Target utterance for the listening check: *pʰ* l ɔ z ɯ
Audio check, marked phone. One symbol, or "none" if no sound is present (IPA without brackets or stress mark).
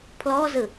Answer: pʰ